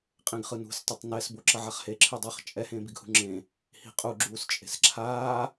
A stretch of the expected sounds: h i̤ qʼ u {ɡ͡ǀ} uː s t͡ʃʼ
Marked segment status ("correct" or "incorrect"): incorrect